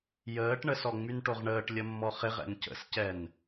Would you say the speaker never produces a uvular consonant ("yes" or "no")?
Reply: no